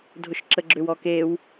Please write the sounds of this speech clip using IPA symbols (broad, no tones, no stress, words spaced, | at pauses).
dʱʊʃǁəɡ͡ǁʏw ɔkew